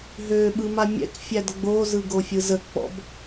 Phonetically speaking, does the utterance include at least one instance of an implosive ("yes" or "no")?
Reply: yes